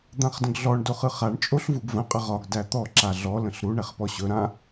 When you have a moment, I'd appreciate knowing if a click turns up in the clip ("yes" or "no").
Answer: yes